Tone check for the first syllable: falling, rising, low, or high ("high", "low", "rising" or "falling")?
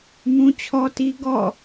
high